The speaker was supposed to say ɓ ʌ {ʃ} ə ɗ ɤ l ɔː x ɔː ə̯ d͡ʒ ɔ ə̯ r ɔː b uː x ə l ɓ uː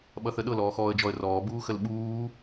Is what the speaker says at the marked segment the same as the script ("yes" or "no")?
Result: no